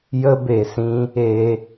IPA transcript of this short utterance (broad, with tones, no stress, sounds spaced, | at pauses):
j ə˧ b e˨ s ĩ˧ | e˧